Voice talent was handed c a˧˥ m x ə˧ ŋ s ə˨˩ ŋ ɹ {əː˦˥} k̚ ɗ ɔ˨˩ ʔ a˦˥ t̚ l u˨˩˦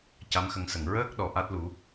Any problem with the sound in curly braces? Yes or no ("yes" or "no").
no